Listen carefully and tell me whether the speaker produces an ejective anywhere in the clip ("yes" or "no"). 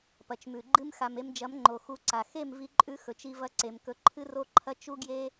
yes